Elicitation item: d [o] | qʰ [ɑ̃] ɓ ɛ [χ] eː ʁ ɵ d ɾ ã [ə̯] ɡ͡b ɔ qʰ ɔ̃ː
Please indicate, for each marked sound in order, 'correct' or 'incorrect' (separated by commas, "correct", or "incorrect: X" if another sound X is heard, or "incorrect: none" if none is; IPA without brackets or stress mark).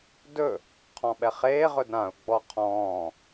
incorrect: ɵ, incorrect: ɔ̃, correct, incorrect: ʊ̯